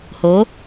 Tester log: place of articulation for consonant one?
glottal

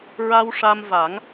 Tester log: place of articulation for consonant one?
alveolar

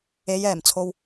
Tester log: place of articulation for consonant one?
palatal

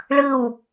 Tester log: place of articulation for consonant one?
retroflex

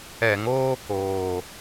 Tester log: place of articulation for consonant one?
velar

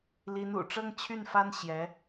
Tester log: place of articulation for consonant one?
alveolar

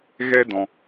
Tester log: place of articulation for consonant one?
velar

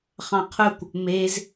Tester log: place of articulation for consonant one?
uvular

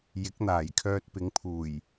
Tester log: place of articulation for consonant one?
palatal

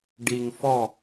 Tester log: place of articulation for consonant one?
retroflex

